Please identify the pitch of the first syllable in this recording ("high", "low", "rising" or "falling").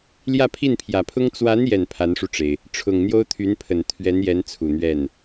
falling